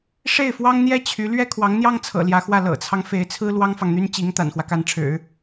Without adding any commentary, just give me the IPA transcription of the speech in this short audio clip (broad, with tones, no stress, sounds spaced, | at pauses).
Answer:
ʂ e˥˩ ɪ̯ f w ɑ˥ ŋ n̪ j ɛ˥ t͡ɕʰ y˧˥ l ɥ ɛ˥ kʰ w ɑ˧˥ ŋ n̪ j ɑ˥ ŋ t͡sʰ ɤ̰˨˩ l j ä˧˥ x w ä˥˩ l ɤ̰˨˩ t͡sʰ ɑ˦ ŋ f e˧˥ ɪ̯ t͡sʰ ɹ̩˥ l w ɑ˥ ŋ f ɑ˨ ŋ n̪ y˥ n t͡ɕ i˧˥ ŋ t̪ a̰˨˩ n x w ä˦ k a˧˥ n ʈ͡ʂʰ ɻ̩˨˩˦